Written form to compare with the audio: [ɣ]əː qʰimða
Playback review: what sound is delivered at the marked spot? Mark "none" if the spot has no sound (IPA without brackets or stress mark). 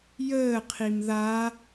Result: j